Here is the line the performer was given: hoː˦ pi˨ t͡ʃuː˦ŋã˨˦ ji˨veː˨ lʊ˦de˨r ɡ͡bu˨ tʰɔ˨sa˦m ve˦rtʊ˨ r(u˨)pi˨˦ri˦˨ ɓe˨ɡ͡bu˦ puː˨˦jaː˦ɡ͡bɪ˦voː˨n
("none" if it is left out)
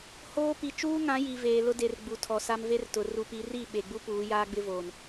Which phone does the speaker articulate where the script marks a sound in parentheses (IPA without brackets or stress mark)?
u˨